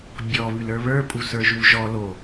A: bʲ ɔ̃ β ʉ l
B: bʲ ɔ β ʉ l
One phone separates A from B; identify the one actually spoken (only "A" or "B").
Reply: B